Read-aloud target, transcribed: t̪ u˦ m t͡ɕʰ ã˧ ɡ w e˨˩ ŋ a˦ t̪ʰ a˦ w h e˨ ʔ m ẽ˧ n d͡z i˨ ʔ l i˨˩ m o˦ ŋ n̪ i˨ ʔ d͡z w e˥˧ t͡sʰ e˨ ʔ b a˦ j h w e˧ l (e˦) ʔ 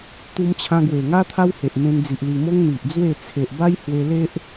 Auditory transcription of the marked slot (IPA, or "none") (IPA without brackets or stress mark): e˦